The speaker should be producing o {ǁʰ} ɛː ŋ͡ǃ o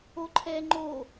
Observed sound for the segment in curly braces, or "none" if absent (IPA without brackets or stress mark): ǃʰ